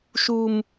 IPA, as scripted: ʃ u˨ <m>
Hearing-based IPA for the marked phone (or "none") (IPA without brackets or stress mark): m